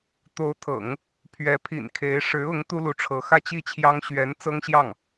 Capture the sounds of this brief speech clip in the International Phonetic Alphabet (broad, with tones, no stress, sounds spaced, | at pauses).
t̪ o˧˥ ʊ̯ t̪ʰ ɤ̰˨˩˦ ŋ | pʰ ɥ ɛ˧˥ pʰ ḭ˨˩ n kʰ e˧˥ ɪ̯ ʂ ɻ̩˧˥ ʊ˧˥ ŋ t̪ u˥ l u˧˥ ʈ͡ʂʰ ɤ˧˥ x ä˥˧ t͡ɕ i˥˩ t͡ɕʰ j ɑ˥ ŋ ɕ ɥ ɛ˧˥ n t͡s ɤ˥ ŋ ɕ j ɑ˥˩ ŋ